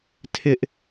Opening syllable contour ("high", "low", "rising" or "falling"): high